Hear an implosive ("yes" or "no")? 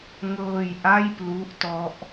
no